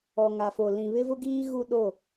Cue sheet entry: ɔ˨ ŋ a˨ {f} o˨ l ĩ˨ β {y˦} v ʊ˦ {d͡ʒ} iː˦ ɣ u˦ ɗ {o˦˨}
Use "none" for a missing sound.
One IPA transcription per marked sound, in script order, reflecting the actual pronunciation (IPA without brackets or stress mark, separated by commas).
f, ɪ˦, ɡ, o˦˨